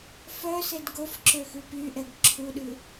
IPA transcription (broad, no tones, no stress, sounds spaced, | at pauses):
f œ s e d ɡ o f ǁ ø x ʉ p y ʔ ɛ ɡ ǁʰ u ɗ ʉ